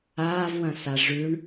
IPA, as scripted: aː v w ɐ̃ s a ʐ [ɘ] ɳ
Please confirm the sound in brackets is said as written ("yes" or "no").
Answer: no